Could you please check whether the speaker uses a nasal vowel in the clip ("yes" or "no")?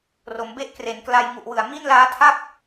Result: no